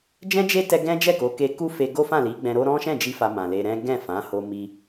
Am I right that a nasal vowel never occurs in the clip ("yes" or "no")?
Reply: no